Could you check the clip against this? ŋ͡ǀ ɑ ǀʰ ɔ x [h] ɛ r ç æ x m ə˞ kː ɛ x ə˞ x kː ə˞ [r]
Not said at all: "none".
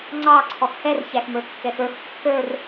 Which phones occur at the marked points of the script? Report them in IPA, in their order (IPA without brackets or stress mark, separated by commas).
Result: h, r